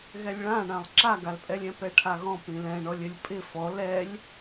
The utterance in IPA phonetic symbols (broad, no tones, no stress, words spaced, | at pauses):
ɣɛlʲɭãɳãlˠ ǁaɡalpʼɛlʲɛ̃ pɛʈʰaɣɔ̃ pĩlɛ̃ɳɔlʲ ɘlʲpʼɪ fɔ lɛlʲ